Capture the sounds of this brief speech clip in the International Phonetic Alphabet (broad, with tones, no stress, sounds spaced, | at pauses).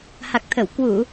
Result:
h a˨˩ k̚ t̪ʰ ə˧˩ w k w u˧˩˨